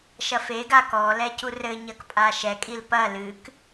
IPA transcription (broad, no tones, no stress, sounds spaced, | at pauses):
ʃ ɐ f e ɡ a k ɔ l ɛ c u r ɘ ɲ ɐ k pʼ a ʃ ɛ kʼ i l p ɐ l ɨ k